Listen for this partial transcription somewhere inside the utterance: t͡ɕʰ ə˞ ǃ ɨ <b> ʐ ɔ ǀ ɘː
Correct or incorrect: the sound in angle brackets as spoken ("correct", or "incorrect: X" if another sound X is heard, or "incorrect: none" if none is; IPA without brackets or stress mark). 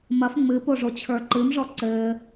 incorrect: m